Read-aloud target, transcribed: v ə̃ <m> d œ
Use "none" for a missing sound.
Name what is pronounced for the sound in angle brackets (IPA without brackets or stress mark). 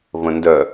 n